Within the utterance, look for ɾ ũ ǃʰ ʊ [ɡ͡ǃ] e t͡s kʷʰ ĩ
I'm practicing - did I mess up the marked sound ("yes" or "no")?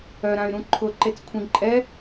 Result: yes